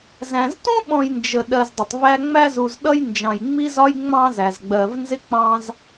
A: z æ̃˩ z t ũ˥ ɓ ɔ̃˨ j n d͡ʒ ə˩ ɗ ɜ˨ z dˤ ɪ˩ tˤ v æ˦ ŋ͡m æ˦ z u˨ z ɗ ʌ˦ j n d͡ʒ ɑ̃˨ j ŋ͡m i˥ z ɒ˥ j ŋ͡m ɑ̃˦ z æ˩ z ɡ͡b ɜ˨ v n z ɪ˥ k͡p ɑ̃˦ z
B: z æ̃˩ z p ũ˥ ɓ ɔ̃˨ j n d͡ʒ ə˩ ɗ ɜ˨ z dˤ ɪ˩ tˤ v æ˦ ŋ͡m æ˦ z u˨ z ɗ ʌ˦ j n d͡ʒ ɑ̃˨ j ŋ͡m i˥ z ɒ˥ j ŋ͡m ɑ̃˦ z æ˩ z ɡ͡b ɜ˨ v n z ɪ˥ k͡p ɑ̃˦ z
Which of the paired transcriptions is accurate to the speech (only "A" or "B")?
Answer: A